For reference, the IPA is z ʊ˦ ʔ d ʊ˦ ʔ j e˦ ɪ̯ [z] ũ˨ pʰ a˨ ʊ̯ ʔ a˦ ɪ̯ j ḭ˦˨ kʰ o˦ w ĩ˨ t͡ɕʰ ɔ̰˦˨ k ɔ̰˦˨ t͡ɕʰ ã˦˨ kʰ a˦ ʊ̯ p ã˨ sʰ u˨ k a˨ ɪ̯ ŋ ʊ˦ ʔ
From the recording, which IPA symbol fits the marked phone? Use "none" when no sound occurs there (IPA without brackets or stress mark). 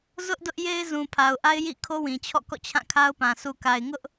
z